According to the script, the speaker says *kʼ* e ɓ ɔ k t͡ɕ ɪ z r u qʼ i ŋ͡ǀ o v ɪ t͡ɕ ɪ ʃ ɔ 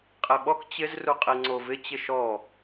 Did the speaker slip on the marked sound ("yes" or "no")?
yes